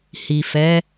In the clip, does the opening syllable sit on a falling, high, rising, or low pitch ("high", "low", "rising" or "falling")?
low